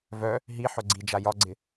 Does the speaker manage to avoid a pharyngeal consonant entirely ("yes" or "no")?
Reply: no